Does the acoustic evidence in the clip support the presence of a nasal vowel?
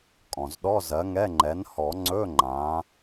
yes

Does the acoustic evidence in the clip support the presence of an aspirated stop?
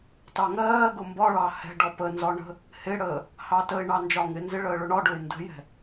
no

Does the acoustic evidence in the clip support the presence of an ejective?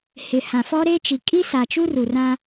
yes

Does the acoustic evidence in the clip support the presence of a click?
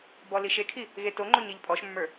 yes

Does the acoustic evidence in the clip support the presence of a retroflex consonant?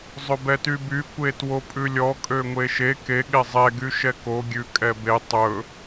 no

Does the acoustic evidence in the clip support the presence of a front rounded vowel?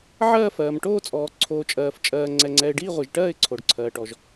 no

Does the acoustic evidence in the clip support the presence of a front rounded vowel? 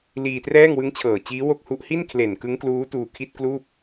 no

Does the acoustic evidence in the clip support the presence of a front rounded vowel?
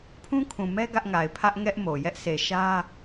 no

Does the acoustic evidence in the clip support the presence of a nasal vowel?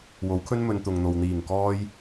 no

